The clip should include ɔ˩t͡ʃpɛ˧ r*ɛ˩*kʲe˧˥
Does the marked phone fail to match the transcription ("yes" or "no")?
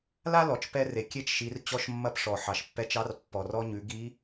yes